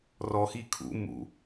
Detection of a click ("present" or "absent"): absent